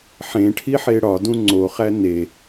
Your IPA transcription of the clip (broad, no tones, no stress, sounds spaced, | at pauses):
ħ ẽ ʈʰ i ħ e ɽ ɒ d ũ ŋ͡ǀ o χ æ n e